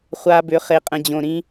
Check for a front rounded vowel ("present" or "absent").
present